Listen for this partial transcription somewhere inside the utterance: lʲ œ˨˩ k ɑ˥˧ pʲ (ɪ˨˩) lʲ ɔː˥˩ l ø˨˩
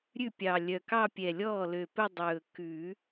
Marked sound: incorrect: ɛ˨˩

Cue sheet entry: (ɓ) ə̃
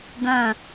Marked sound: incorrect: ɡ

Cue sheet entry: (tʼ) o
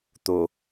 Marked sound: incorrect: t̪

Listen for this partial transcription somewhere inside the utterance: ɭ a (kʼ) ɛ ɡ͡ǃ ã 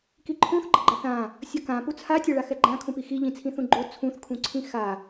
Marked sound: incorrect: x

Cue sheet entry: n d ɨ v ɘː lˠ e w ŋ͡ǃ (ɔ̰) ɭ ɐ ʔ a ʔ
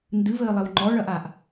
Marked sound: incorrect: ɔ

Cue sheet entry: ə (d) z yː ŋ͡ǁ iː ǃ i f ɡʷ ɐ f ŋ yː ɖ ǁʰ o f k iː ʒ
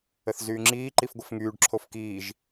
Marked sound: incorrect: θ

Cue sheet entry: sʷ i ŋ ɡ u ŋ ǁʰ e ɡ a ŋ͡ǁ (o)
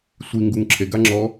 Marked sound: incorrect: ɔ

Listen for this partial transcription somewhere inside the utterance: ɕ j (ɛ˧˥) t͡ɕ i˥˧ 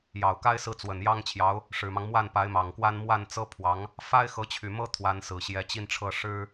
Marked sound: correct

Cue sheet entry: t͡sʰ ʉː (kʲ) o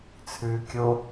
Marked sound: correct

